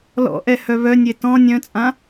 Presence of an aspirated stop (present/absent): absent